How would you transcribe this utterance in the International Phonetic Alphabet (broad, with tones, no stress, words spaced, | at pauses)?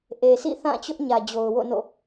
ʔe˨sʰḭ˦˨θã˦˨t͡ɕʊ˦ʔ ɲä˨d͡ʑo˨ʊ̯ wo̰˦˨no̰˦˨